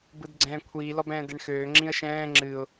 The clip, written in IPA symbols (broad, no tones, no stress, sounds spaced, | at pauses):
b ɯ d ɡ͡ǀ ɛ̃ː kʷʰ iː l ɔ b ɛ̃ː d ɛ ɳ x øː ŋ͡ǁ ĩ ə̯ ʃ ɛ̃ː ŋ͡ǁ ɨ ʊ̯